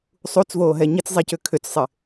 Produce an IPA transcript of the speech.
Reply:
sˤut͡svoːɦɛ ɲit͡szˤɛcʏ kʰʏt͡ssˤɪ

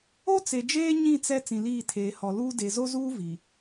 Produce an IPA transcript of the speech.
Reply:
o˦t͡se˨d͡ʒeː˦ ɲĩ˦˨t͡sɛ˦ t͡sĩ˨liː˦˨tʰeː˨ hɔ˨luː˦ de˨zo˦zuː˦ vi˨

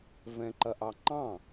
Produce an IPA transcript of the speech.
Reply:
vɛ̃ǃɐʔɑŋ͡ǃɑ̃

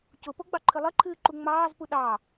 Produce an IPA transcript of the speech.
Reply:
cʊpoɡ͡bɑǃʰɨ lˠɘǃʰɨːǃu ŋ͡mɑːzpu ɗɑ

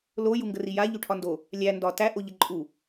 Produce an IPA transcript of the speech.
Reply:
lo juŋɡərija ʎyʈʰɒndo | lʲæ ndɒ tæ ʔoʎəǃʼu

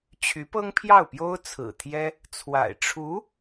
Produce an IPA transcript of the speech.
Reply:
t͡ɕʰy˧˥pɤ˥ŋpʰjɑ˥˩ʊ̯pjo˥ʊ̯ t͡sʰɹ̩˨˩t̪ʰjɛ˥ | t͡sʰwa̰˨˩ɪ̯ ʈ͡ʂʰu˧˥

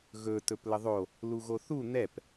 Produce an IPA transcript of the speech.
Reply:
ɣɵ tɵpləðˤo | luɣoθu n̪ɛp

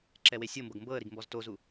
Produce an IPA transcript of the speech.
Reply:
ǁɛwesʲɤmbɤɡ mbɤə̯ɾiɡ mbɔztozu

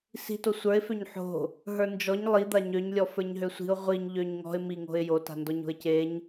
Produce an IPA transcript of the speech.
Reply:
si̤to sʷə˞ɪ̯ føɲħo̤ | ɦə˞nd͡ʒɔɲ lˠid̪a ɲøɲlʲɔ fə˞ɲɦøsʷi̤ʊ̯ ʁʷiɲ ʎøɲŋɔ̤ɪ̯ miŋo̤ɪ̯ jota̤ndɔɲ o̤ɪ̯ceɲ

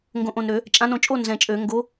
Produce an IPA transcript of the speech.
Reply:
ŋɡõ˨˩ʔõ˨˩nɾø˧˩˧ | t͡ʃʼã˨˦nõ˧˩˧t͡ʃʼo˥˨ nzɛ̃˨˩t͡ʃʼø˧˩˧ ŋɡo˨˦

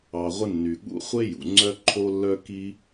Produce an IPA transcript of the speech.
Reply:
ɑ˩ʁʷɪ˧ nːy˩ɠṵ˧χʷe˥jṵ˩ ŋ͡ǀœ˥ǃʰo˥lːœ˥ ki˥

